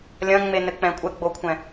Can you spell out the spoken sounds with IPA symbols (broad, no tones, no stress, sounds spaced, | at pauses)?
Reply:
lʲ ɐ̃ ŋ͡m e n ɘ k͡p ɛ̃ kʷʼ ɛ ɡ͡b o kʷʰ ɛ̃